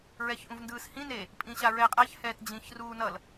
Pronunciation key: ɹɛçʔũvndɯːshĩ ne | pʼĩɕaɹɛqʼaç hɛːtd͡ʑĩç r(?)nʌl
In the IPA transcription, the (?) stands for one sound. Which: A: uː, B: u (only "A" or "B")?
A